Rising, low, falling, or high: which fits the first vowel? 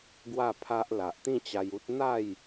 falling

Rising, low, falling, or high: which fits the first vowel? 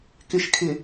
low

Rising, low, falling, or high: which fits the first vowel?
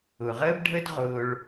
low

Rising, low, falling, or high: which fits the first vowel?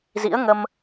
rising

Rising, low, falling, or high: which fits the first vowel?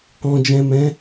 low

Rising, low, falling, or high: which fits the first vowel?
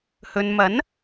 low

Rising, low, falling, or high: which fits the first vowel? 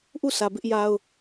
falling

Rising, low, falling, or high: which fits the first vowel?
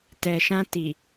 low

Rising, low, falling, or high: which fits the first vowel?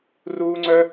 high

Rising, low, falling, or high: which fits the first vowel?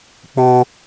high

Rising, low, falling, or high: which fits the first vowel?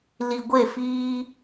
low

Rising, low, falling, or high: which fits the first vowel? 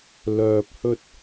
low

